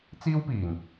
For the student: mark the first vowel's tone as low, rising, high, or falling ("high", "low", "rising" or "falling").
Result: high